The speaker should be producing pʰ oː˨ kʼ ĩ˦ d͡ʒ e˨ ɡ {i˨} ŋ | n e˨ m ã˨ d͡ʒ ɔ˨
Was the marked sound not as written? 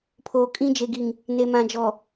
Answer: no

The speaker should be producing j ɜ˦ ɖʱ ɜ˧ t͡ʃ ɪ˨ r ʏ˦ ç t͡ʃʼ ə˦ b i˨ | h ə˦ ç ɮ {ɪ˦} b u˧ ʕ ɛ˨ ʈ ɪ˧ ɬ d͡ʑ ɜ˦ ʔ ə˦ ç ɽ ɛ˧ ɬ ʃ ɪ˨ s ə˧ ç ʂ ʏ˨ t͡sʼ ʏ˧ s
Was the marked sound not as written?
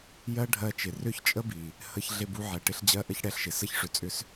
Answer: yes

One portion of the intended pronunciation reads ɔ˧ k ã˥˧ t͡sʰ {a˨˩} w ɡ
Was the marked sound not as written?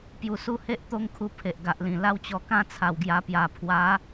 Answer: no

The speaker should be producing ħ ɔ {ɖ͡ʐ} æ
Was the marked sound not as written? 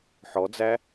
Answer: yes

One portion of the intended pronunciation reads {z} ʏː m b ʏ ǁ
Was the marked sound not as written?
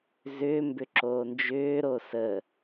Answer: no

